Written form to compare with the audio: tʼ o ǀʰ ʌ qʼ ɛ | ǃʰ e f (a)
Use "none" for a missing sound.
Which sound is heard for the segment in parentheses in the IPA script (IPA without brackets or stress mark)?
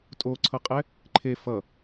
ʌ